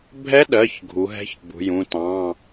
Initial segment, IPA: bʱ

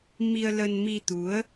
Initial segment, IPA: m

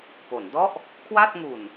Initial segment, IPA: p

